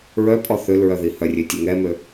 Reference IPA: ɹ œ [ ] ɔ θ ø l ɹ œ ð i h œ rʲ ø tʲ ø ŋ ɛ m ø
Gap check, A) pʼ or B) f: A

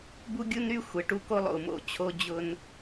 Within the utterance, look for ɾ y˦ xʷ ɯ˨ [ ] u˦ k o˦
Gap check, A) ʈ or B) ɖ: A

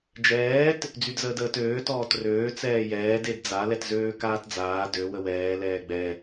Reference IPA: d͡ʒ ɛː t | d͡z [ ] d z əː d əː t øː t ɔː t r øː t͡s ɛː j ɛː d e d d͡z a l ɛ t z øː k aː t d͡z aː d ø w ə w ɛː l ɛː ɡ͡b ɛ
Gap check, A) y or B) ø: A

